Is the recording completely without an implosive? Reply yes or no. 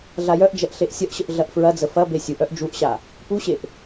yes